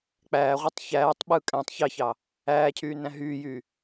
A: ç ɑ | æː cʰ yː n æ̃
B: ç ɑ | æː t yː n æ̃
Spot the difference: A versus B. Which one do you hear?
A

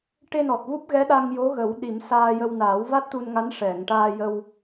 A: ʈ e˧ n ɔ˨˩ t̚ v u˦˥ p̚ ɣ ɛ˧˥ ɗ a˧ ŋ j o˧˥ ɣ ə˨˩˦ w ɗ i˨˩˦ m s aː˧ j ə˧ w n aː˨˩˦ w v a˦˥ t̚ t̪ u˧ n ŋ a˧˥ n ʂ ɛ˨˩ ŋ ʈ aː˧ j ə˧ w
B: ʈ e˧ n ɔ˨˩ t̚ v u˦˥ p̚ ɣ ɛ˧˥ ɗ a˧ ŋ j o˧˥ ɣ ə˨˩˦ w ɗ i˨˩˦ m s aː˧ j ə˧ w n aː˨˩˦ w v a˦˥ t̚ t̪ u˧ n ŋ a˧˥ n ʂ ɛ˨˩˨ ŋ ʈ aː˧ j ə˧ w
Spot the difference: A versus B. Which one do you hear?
B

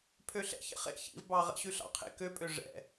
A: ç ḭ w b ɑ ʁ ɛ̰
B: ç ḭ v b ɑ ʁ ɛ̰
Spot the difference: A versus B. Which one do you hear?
B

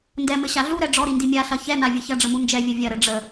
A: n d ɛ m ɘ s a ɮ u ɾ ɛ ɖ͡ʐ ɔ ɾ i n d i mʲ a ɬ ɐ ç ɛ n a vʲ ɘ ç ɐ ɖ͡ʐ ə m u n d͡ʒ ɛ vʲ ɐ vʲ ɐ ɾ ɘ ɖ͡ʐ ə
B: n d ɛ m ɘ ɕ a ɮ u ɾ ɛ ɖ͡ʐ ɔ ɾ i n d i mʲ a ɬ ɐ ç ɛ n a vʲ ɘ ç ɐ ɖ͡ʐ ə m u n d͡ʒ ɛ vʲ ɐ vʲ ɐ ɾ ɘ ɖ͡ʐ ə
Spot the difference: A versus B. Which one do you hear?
B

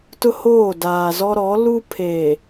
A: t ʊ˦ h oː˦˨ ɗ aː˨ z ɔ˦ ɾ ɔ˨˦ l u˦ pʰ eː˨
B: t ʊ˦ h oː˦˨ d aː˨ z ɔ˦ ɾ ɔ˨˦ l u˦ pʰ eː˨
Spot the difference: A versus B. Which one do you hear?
B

